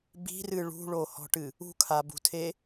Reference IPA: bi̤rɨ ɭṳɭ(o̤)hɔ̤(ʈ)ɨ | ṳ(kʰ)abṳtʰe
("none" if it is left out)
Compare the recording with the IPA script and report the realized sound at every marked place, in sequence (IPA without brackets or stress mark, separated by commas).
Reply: o, ʈ, kʰ